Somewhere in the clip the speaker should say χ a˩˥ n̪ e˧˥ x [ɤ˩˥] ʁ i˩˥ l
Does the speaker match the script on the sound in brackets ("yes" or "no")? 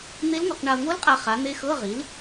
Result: no